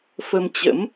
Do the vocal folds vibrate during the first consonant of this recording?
no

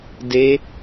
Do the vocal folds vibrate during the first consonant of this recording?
yes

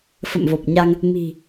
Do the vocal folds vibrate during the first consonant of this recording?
no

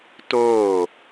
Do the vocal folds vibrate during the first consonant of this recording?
no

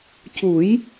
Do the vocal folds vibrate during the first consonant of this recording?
no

